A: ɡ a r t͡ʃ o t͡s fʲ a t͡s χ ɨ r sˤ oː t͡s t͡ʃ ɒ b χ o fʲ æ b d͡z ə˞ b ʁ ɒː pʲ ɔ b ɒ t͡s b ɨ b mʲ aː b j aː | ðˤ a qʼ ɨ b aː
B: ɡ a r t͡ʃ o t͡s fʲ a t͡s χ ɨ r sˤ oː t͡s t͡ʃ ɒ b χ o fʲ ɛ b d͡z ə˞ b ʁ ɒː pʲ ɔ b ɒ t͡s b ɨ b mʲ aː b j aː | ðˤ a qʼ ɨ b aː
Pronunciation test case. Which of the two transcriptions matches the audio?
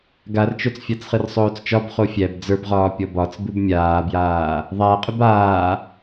A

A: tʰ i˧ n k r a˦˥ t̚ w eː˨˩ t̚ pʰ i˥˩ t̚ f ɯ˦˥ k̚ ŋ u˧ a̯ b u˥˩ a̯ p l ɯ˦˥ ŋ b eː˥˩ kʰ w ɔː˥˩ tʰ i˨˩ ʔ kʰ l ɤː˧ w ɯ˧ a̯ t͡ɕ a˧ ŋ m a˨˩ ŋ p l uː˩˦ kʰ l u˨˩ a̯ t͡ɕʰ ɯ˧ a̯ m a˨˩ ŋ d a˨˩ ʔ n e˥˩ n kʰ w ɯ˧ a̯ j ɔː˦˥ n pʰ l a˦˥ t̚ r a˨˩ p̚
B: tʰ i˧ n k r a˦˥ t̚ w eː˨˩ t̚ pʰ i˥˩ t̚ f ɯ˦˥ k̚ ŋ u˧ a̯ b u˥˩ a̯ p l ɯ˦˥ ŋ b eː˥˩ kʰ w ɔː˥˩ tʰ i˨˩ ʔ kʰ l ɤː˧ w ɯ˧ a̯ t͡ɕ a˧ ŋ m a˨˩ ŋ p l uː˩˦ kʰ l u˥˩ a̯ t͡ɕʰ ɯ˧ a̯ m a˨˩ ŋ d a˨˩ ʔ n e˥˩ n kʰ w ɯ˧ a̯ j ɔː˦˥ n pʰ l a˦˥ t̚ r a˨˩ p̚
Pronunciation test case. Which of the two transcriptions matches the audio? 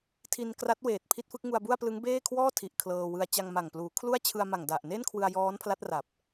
B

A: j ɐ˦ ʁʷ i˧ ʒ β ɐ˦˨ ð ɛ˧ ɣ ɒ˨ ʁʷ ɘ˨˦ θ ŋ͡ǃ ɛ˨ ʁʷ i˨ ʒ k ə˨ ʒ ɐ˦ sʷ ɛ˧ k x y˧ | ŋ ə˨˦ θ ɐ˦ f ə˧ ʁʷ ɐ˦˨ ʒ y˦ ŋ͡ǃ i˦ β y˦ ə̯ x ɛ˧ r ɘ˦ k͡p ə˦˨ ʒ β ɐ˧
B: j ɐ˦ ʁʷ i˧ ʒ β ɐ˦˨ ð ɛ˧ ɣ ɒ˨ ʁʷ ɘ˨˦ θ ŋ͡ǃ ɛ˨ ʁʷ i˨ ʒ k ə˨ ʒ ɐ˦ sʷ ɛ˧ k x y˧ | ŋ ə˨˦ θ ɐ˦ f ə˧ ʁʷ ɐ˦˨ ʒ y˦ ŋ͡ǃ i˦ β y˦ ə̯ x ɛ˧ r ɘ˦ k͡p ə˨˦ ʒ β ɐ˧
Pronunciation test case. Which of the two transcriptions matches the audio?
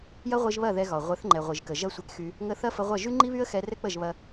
A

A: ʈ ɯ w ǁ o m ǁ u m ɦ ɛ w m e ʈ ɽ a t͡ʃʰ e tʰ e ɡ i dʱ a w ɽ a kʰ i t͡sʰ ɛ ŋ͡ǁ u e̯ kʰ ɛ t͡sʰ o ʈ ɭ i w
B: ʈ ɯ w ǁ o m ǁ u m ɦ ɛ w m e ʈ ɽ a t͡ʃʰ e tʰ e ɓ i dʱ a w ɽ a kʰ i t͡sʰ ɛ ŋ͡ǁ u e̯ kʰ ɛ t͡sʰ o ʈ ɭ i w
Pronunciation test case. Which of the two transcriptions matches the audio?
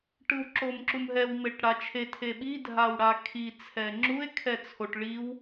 B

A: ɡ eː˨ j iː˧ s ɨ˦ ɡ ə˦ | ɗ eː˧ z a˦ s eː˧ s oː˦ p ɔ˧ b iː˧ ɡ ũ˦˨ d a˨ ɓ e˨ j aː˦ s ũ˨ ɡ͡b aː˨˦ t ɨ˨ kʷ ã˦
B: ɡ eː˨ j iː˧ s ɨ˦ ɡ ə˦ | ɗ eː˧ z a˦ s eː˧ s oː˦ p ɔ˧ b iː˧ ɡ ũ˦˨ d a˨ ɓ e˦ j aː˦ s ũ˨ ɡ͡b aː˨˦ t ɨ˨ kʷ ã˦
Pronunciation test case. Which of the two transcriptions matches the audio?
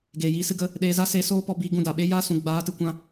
B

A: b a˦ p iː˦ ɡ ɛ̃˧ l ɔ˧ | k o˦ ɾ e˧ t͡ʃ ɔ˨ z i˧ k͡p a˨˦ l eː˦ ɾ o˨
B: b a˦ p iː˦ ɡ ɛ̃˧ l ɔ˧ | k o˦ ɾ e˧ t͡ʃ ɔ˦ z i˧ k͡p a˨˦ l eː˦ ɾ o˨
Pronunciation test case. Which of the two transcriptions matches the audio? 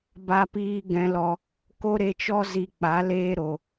B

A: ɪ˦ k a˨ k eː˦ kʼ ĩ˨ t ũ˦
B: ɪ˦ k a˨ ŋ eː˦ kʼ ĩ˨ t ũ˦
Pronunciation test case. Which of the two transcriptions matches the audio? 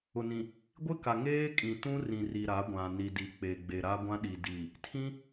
B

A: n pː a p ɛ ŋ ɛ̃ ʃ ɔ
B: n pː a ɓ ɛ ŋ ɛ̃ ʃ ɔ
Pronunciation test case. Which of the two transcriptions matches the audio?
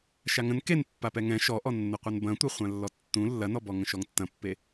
A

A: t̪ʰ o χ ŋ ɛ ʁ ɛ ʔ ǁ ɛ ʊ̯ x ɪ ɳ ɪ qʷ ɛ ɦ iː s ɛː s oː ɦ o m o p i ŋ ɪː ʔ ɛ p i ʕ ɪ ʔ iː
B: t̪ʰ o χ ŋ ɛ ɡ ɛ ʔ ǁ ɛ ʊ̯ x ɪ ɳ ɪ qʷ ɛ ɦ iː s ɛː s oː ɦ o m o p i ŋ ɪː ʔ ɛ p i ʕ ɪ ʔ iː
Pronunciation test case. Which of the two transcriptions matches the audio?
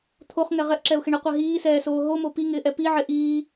A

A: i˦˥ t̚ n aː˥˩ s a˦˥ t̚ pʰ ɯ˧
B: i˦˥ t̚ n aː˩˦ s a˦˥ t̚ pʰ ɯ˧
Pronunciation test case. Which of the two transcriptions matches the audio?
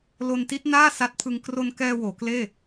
A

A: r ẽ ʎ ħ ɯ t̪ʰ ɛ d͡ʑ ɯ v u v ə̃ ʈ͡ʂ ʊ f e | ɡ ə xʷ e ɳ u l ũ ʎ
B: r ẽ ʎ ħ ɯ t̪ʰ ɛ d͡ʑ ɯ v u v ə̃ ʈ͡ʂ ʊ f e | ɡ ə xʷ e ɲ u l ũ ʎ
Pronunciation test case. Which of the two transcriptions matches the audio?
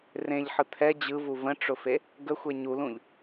B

